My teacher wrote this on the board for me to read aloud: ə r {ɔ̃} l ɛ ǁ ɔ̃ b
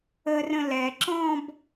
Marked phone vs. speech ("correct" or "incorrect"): incorrect